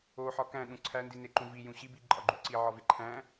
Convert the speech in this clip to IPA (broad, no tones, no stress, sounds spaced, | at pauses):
o ħ ɒ k æ̃ ɗ ũ ǀʰ æ n d i n e ǃ ũ v i j ũ ɕ i b i ǃʼ ɒ ɡ͡ǃ u ǀ i ʕ ɒ v e ǃʰ æ̃